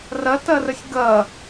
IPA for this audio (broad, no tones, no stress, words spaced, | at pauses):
rɐtɐrəsʲ ɡɐ